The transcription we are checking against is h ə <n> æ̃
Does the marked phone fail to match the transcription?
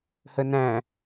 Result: no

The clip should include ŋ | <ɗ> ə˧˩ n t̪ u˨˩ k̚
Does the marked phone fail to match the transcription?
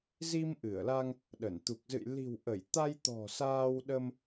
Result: no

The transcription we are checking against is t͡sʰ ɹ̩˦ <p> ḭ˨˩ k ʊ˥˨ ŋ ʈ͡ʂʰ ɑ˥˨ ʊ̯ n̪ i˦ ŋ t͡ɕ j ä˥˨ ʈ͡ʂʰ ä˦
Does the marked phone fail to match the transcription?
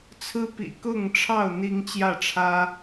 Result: no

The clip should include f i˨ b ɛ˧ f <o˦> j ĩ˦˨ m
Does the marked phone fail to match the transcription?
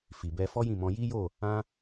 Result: yes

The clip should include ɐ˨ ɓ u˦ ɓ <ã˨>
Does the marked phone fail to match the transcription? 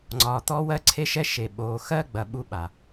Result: yes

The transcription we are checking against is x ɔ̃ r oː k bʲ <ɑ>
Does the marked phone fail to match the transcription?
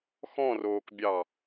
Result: no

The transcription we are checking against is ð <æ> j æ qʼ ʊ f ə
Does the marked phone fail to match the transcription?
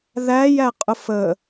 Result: no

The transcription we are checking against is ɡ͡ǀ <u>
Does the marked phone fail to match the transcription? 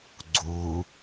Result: no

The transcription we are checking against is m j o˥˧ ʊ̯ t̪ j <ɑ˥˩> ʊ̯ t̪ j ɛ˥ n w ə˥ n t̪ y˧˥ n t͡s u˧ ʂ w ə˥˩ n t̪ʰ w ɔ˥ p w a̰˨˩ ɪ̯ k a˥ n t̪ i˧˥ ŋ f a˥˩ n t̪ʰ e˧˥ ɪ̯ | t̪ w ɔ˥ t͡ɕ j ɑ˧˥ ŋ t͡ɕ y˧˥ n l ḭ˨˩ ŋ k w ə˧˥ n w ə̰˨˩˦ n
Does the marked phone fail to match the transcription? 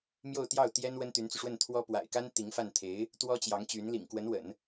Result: no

